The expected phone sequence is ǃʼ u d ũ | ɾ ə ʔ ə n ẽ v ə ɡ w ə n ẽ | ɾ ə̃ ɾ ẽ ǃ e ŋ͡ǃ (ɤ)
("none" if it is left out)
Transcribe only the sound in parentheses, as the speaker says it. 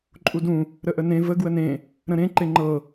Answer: ɤ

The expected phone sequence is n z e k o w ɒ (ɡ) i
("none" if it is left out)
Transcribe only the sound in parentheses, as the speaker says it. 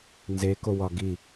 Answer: ɡ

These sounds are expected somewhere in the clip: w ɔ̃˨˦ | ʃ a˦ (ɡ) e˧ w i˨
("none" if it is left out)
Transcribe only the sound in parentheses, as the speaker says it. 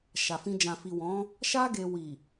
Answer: ɡ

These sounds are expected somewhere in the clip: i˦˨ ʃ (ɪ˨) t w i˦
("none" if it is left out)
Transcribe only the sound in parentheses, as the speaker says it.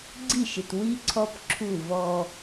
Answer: ɪ˨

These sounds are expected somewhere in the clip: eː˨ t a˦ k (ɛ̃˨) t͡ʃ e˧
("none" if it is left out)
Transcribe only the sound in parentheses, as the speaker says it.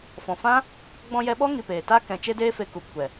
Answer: ɛ̃˨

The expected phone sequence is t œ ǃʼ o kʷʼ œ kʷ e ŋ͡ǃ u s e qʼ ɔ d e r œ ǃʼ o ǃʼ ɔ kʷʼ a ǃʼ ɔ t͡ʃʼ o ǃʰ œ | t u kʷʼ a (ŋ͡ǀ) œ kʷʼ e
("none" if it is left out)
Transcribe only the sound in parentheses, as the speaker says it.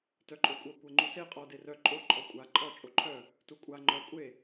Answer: ŋ͡ǃ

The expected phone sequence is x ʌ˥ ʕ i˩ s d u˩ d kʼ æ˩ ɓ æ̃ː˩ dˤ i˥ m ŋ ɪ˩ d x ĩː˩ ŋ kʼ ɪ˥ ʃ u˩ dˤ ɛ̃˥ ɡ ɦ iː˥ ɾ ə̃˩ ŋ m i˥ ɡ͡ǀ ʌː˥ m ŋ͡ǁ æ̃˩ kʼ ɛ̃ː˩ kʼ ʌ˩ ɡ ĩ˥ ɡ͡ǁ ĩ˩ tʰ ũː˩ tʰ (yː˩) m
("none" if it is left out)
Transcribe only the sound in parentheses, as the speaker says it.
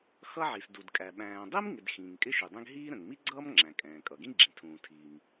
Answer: iː˩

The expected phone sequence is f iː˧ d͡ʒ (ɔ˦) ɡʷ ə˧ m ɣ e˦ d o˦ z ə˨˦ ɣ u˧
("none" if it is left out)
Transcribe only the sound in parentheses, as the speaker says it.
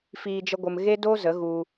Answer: ə˦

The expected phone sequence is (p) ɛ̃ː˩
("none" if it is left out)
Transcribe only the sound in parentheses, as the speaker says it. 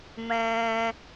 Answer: m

